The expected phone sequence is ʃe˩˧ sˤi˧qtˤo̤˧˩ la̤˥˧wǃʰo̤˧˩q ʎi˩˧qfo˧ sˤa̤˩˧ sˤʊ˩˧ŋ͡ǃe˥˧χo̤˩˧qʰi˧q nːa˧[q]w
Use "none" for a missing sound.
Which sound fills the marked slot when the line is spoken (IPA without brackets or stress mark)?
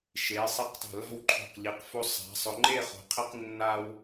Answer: none